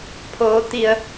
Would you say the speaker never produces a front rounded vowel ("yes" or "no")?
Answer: yes